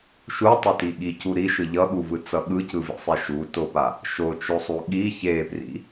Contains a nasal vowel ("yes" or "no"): no